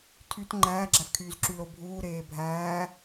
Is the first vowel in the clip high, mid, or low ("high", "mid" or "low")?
high